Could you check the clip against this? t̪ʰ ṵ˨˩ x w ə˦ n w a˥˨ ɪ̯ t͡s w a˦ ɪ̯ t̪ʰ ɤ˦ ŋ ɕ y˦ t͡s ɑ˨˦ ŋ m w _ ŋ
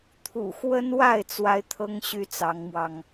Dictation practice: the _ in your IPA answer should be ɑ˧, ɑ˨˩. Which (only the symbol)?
ɑ˧